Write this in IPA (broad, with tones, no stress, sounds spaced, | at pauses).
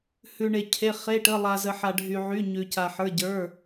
h ʉ˩ ɳ e˩ cʰ e˩˧˩ χ e˩˧˩ ʈ ə˩˧˩ lˠ a˩ z ə˩ ħ a˩ ɖʱ y˩ ʕ y˩˧˩ ɲ ʉ˩ c a˩ ħ ə˞˩˧˩ ɟ ə˞˩˧˩